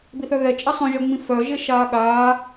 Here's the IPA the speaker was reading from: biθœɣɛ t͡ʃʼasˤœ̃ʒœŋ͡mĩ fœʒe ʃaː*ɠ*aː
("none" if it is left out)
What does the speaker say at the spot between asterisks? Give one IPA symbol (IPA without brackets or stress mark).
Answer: ɠ